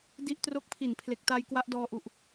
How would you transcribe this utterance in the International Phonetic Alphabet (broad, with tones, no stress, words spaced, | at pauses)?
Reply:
di˦˥ʔtro˦˥k̚pʰi˨˩n pʰle˨˩k̚ta˧j kwa˦˥ʔdɔː˧ʔu˨˩ʔ